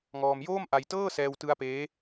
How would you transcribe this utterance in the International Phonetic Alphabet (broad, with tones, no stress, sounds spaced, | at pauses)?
ŋ ɔː˧ m j oː˥˩ m ʔ a˧ j t ɤː˥˩ s ɛː˧ w t ɯ˦˥ a̯ p eː˦˥